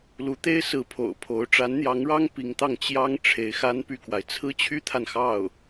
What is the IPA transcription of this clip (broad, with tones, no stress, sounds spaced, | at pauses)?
l u˧˥ t̪ e˥ ɪ̯ s ɹ̩˧˥ pʰ o̰˨˩ ʊ̯ pʰ o˧˥ ʊ̯ ʈ͡ʂ a˧˥ n n̪ j ɑ˧˥ ŋ ɻ ɑ˥ ŋ p i˧˥ ŋ t̪ ɑ˥˩ ŋ t͡ɕ j ɑ˥ ŋ ʈ͡ʂʰ e˧˥ ɪ̯ x a˥ n p y˥˩ k w a˩ ɪ̯ t͡sʰ ɹ̩˥ t͡ɕʰ y˥ t̪ʰ a˨ n x ɑ˥˩ ʊ̯